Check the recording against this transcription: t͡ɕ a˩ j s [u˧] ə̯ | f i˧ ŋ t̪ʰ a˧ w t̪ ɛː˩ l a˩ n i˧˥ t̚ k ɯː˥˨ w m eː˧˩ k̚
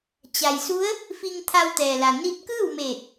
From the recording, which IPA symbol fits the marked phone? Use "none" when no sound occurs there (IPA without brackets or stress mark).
u˧˥